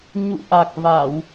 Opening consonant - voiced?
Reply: yes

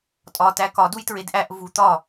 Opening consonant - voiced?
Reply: no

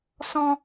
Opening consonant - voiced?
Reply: no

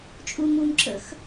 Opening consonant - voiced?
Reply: no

